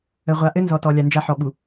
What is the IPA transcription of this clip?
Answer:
ə˨ ʁʷ a˨ ʔ ɘ˦ n z ɔ˨ t ɔ˨ lʲ a˨ n d͡ʒ a˦ ħ ɔ˨ ɓ u˨

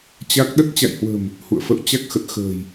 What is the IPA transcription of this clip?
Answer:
t͡ɕ a˦˥ k̚ ɗ ə˦˥ t̚ t͡ɕ a̰˧˨ j h w ə̤˨˩ m | h ṵ˧˨ ə̯ f ə̰˧˨ w t͡ɕ a˦˥ k̚ x ə˨˩ t̚ x ə̤ː˨˩ j

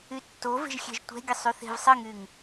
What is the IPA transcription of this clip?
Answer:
y tː o v e̤ ʒ xʲ ɛ̤ ʒ tʷ ɛ̤ ɡʲ ɘ sˤ y θ e̤ v sˤ ɘ ŋ y ŋ

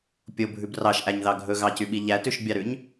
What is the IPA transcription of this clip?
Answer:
pʲ o bʱ ʉ b r ɑ ʃ ʔ æ ɲ ð ɑ ɡʱ ɵ ɣ ɑ c y ɓ i ʎ æ t ʉ ʃ bʲ ɑ ɾ ʉ ɲ

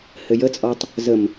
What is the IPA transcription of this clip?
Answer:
h ɘ j ə t͡sʼ ɔ tˤ | z ə m

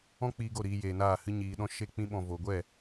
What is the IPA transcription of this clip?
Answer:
ɔ̃˦ k͡p iː˧ ɡ o˦˨ ɾ iː˧ j eː˨ n aː˦˨ h ɨ˧ ɲ iː˨ ɗ ɔ̃˧ ʃ e˧ k͡p ĩ˧ ɓ ɔ̃˨ v o˨ ɡʷ ɛ˦˨

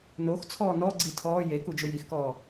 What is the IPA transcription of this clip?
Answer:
n o x t͡sʰ ɔː n ɔ ɡ͡ǀ i tʰ ɔː j e k u d͡ʒ ʊ j i x k ɔː

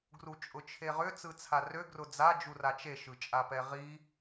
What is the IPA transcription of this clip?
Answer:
ɡ r u t͡ʃʼ ʊ t͡ʃʰ e ʁ ʏ t͡s ɯ t͡sʰ a r ø ɡ r ʊ d͡z a d͡ʒ u r a t͡ʃ e ʃ ɯ t͡ʃʼ a p ɛ ʁ i

